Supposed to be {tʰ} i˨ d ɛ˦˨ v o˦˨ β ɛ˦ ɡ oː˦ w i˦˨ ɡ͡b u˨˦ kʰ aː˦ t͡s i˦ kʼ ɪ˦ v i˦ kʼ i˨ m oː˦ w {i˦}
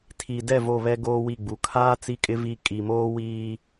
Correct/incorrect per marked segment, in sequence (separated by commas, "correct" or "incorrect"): correct, incorrect